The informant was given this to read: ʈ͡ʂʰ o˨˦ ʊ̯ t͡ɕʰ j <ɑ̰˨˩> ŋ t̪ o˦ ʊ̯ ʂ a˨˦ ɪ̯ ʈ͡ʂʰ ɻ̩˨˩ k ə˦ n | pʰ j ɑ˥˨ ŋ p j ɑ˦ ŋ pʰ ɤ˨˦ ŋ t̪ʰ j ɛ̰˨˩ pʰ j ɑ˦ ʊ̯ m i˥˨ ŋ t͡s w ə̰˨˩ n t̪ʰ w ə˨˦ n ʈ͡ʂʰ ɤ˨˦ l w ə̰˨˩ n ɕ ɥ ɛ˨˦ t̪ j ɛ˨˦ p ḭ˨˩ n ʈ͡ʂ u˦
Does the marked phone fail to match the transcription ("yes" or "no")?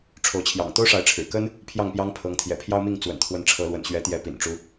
no